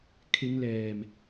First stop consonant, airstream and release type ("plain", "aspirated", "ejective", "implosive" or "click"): aspirated